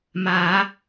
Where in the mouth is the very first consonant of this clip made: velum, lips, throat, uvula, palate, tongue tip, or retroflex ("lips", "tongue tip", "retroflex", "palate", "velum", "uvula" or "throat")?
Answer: lips